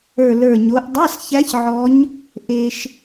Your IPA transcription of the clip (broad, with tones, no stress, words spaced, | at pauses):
ə˞˨˩lə˞˨˩ɲo˩˧ʔ dˤa˧˥˧sçæ˧˥ç ʕɔ˧˥ɲ | ʔe˧ʃ